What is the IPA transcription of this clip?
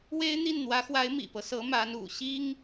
w e˥ ɪ̯ n̪ i˥˩ n n̪ w ä˧˥ x w a˧˥ ɪ̯ m ḭ˨˩ p ɤ˦ s ɤ˧˥ m a˧˥ n ṵ˨˩ ɕ i˥ ŋ

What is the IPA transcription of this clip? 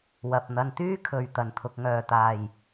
w ɐ˨ p̚ n̪ ɐ˧ n t̪ yː˥ kʰ ɵ˨ ɥ t̪ ɐ˨˩ n t̪ʰ ʊ˨ k̚ ŋ œː˨˩ t̪ aː˨˩ j

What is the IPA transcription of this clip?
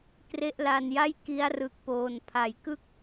k r e˦˥ ʔ l a˧ n j a˥˩ j k i˦˥ a̯ r ɯ˨˩ k̚ p oː˨˩ n pʰ a˩˦ j k ɯ˥˩ k̚

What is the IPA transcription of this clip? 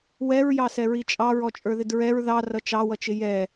w ɛ ɹ j ɑ s ɛ ɹ i t͡ʃʼ ɑ ɹ ɔ t͡ʃʼ ə˞ ð ɪ d ɹ ɛ ɹ ð ɑ r ʌ t͡ʃ ɑ w ʌ t͡ʃ ɪ j ɛ

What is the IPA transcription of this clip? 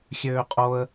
xʲ øː qʼ o ə̯

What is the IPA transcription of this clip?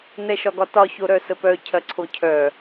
n ɛ ʃ ɒ ɡ ɒ t ɒ ç o ɾ œ s ə p œ cʰ ɐ ǀʰ o cʰ œ

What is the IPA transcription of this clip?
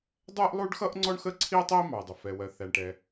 dˤ ɛ˥ ʔ lˠ u˥ ɖ x ʌ˥ ʔ ŋ͡ǀ ɔ˥ ɳ x əː˥ ǀʰ iː˥ tˤ iː˥ m ɑ˩ ə̯ dˤ ʊ˩ f ɛ˩ w ɜ˩ θ æ˩ ɳ ʈ ɛ˩

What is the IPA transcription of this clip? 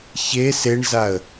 ç e s e ɳ z a ə̯

